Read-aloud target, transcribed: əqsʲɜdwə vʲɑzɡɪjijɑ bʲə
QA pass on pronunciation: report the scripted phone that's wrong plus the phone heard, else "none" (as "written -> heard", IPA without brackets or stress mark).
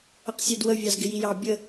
none